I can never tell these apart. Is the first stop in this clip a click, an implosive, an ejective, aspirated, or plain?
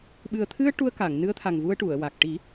implosive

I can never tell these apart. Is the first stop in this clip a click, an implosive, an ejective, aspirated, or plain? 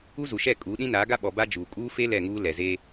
ejective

